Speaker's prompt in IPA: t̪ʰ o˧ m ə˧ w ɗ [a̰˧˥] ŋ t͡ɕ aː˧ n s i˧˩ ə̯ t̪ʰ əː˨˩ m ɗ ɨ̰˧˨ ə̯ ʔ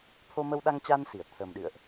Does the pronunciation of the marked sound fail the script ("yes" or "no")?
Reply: yes